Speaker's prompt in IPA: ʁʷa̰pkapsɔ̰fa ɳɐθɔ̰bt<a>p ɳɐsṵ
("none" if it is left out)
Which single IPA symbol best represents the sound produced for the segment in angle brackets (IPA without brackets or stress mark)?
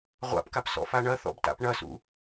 a̰